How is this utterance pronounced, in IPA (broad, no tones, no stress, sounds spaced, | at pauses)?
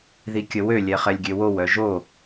ð i kʲ ə w ø lʲ ɛ χ ɛ lʲ ɡʲ ø w o w œ ʒ o